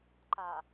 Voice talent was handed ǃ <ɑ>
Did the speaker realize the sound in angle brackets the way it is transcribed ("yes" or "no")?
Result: no